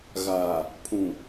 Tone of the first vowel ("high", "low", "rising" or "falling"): low